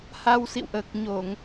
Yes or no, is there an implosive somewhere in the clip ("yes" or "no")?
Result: no